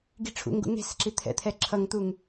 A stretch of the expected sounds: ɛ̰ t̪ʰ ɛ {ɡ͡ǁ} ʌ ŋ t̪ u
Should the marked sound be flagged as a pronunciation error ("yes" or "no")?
yes